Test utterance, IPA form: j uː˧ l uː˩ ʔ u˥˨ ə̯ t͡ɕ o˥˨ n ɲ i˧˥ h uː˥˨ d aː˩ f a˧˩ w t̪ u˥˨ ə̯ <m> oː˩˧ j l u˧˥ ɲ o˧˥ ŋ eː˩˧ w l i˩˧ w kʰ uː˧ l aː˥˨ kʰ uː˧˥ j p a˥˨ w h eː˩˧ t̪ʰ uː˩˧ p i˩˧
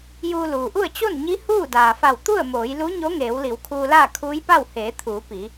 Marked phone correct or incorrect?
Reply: correct